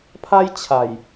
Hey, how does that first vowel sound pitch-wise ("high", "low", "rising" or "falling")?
high